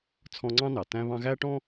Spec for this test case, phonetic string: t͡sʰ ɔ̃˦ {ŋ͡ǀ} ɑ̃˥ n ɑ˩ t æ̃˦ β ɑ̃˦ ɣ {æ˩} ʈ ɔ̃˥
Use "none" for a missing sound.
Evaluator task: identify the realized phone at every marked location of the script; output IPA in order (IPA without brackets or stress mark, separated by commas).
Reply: ŋ͡ǀ, æ˥